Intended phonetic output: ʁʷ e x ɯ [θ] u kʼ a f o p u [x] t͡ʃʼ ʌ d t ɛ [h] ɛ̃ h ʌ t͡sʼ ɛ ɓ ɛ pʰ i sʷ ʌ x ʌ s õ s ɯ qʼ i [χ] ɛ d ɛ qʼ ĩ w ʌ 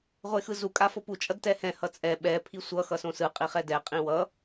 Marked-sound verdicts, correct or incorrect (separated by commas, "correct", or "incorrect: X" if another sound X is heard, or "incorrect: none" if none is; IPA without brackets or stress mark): incorrect: z, incorrect: none, correct, correct